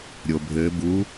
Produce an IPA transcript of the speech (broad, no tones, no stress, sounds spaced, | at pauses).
ɾʲ o bʱ ɘː b u